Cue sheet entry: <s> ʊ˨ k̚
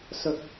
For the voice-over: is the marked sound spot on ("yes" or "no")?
yes